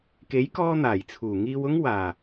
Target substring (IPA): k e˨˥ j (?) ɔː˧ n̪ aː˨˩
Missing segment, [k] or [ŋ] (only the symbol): k